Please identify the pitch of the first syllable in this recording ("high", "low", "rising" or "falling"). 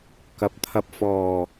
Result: low